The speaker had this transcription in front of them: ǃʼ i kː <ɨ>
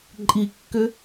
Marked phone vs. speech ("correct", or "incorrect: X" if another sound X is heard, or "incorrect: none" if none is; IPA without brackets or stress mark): incorrect: ʏ